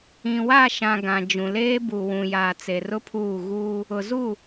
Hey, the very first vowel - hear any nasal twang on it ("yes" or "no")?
yes